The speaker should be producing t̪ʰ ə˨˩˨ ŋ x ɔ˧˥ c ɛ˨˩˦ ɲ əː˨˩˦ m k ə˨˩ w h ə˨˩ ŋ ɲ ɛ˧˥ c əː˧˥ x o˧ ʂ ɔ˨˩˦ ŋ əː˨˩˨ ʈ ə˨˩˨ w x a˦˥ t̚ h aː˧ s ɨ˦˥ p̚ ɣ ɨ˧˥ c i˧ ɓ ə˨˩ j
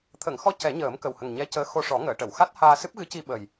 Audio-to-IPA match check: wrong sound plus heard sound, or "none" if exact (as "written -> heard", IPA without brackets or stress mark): none